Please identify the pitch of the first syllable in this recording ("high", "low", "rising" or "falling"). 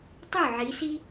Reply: falling